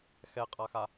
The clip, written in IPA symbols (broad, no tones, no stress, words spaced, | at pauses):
xɛqʼaxa